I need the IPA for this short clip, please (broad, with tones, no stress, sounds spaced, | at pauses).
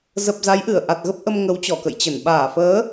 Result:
z ə˨˩ p̚ z a˨˦ j ʔ ɨ˧˩ ə̯ ʔ a˨˩ t̚ ɣ ə˦˥ p̚ ʔ ə˧ m ŋ ə˨˦ w t͡ɕ ɔ˧˩ k ə̰˧˨ j t͡ɕ ə˧˩ n ɓ aː˧˩ f əː˨˦